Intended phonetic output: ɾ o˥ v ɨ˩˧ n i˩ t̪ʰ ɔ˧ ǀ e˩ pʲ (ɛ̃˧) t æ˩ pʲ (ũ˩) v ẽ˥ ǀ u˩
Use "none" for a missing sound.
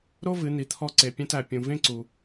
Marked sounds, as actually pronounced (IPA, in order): ɛ̃˧, ũ˩

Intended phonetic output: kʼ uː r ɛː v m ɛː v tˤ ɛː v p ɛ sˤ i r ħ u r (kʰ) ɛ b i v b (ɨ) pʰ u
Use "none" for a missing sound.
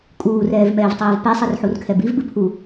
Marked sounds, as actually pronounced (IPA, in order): kʰ, ɨ

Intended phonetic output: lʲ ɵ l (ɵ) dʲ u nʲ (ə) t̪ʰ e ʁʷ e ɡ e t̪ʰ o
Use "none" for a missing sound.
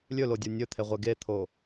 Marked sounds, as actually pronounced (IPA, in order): o, ɵ

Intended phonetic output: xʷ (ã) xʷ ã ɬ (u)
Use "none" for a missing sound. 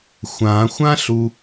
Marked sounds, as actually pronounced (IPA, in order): ã, u

